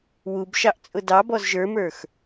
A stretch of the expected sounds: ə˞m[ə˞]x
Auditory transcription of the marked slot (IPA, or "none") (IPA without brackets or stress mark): ə˞